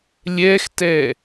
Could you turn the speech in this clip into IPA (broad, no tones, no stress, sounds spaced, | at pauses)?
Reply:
lʲ ɛ x t ɛ